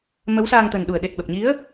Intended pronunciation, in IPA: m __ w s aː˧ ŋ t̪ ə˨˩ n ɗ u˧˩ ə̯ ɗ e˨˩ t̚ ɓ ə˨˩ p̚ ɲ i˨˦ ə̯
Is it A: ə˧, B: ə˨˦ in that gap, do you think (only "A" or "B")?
B